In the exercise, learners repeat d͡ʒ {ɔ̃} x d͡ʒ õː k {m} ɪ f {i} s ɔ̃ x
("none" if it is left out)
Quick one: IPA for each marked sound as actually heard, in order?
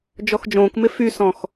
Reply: ɔ, m, y

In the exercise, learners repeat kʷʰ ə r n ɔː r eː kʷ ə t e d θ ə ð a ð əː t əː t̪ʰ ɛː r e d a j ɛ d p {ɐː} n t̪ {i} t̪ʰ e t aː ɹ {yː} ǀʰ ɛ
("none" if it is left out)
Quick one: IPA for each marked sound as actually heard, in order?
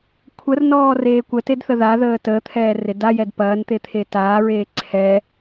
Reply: ɐː, e, eː

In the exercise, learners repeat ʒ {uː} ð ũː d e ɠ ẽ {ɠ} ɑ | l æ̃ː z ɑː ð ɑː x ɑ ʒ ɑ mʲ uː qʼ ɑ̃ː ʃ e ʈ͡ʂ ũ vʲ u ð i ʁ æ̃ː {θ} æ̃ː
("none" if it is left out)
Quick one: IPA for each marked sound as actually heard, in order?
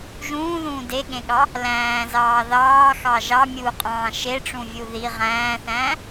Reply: ũː, ɠ, θ

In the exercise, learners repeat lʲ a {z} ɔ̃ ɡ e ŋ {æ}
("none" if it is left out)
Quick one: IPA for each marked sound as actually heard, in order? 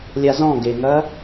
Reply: z, ɐ

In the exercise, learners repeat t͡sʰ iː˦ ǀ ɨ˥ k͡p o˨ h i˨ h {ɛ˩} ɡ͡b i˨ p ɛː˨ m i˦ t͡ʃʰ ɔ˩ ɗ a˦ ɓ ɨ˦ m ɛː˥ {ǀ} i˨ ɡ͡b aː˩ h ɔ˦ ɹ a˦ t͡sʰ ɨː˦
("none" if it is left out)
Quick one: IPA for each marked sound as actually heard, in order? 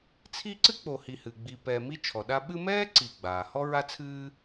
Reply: ɨ˩, ǀ

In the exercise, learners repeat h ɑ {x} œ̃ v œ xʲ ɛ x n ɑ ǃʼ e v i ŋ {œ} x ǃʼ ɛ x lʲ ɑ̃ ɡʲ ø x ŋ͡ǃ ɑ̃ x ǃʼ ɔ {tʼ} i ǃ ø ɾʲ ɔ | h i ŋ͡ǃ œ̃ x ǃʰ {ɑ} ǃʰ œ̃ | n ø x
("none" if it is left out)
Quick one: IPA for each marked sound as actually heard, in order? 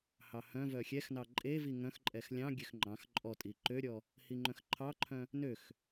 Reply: h, œ̃, tʼ, ɑ

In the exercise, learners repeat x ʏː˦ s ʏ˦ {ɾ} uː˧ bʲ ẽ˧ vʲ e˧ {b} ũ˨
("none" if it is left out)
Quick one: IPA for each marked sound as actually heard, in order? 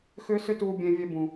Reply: t, b

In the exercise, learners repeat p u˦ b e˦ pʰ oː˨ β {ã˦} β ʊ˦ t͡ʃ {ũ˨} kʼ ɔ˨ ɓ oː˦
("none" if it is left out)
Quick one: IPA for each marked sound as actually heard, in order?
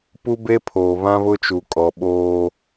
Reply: ã˦, u˨

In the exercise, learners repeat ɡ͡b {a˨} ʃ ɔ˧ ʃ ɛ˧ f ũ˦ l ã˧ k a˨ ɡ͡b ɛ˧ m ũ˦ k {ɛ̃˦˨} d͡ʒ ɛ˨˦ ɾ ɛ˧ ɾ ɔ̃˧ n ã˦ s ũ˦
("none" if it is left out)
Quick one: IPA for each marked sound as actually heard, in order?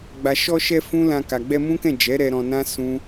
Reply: a˨, ɛ̃˦˨

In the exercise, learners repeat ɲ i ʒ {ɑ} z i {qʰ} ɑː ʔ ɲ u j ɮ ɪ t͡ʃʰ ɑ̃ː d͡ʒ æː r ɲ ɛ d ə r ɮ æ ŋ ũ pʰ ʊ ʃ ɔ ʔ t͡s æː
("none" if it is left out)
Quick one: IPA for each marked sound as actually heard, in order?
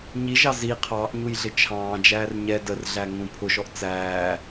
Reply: ɑ, qʰ

